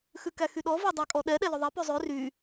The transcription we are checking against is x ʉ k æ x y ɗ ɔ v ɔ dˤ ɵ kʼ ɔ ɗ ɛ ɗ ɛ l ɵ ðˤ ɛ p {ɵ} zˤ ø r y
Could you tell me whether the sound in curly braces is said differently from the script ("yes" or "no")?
yes